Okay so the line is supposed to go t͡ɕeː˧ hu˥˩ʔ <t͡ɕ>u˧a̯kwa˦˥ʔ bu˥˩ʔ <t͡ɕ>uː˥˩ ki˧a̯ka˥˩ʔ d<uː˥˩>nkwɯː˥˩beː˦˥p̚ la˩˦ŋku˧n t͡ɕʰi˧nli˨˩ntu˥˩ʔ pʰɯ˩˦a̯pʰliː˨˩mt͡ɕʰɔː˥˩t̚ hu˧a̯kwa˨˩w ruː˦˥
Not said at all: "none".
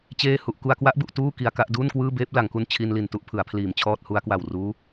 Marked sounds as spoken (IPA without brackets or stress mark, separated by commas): k, t, uː˥˩